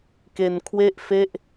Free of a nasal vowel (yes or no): yes